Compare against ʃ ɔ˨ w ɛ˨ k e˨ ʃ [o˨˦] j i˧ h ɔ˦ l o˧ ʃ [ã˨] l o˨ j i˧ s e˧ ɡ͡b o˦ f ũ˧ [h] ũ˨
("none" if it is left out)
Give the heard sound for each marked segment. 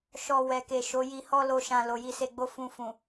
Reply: o˨˦, ã˨, f

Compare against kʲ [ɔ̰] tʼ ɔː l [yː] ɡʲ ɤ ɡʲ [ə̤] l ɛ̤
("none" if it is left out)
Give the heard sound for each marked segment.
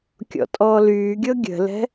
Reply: ɔ̰, yː, ə̤

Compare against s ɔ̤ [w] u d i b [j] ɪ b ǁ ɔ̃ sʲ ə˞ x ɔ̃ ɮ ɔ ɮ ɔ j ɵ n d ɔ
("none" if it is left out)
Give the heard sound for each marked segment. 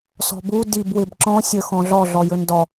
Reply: b, w

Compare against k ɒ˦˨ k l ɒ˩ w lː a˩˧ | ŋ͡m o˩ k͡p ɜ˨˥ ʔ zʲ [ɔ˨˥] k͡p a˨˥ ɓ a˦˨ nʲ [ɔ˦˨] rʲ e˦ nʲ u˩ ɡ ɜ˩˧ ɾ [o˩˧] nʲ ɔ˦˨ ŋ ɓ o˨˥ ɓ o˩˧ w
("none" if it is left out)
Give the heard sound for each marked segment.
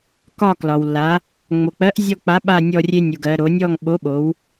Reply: ɔ˦˨, ɔ˦˨, o˩˧

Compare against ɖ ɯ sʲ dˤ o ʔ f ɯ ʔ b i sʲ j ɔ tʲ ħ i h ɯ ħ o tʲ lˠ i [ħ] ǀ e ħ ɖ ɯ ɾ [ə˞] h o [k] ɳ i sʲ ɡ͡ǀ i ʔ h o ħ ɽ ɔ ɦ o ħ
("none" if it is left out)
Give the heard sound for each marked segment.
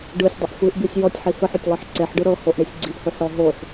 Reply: ħ, ɤ, ʔ

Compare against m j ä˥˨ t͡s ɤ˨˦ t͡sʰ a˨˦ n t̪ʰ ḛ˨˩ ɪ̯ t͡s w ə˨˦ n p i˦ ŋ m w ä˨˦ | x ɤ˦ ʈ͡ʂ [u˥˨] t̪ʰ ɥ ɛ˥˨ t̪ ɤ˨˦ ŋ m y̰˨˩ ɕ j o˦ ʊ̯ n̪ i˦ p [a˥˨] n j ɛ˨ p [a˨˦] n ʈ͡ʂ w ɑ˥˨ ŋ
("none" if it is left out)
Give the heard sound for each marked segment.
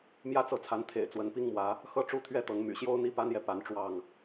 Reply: u˥˨, a˦, a˨˦

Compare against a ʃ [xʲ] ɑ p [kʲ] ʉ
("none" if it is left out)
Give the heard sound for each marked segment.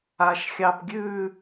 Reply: xʲ, ɡʲ

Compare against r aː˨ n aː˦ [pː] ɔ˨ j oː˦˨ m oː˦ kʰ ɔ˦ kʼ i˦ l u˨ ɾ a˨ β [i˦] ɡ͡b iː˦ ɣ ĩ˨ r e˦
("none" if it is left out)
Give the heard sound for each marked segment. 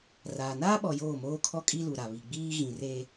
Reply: ɓ, i˨

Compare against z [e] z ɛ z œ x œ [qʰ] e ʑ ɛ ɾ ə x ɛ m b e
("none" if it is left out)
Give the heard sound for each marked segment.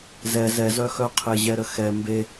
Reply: ɛ, qʰ

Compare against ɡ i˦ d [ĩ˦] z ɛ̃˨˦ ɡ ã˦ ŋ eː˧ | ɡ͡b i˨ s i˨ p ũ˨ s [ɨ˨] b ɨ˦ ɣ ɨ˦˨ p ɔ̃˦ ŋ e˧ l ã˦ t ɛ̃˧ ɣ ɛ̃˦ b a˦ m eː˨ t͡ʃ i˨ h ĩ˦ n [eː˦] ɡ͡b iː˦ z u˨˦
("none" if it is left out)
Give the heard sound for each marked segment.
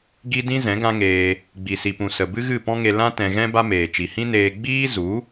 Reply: ĩ˦, ə˨, eː˧

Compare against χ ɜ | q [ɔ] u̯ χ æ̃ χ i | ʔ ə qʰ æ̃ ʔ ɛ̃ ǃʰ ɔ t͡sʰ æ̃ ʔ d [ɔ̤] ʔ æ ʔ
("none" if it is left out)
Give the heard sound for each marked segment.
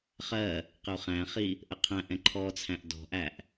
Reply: ə, ɔ̤

